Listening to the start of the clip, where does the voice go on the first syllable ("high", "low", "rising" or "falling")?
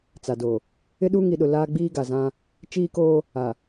low